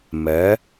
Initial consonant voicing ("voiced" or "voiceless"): voiced